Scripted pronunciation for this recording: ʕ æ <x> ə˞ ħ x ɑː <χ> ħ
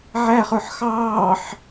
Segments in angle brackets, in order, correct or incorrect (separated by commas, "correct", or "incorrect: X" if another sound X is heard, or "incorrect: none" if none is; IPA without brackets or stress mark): incorrect: χ, incorrect: none